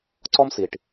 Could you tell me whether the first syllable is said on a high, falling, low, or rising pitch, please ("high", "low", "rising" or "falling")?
high